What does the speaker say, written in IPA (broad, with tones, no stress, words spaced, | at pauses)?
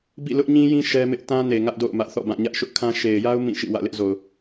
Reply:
bḭ˦˨lʊ˦ʔɲĩ˦jĩ˦ ʃɛ˦mɪ˦ʔ tã˦ne˨ ŋä˦ʔdo̰˦˨ʊ̯ mä˦ʔθɔ̰˦˨bã˦˨ ɲä˦ʔʃʊ˦ʔkʰã˦ ʃe˨ɪ̯ja˦ʊ̯ mĩ˦˨ʃḭ˦˨wä̰˦˨ lɪ˦ʔzo˨ʊ̯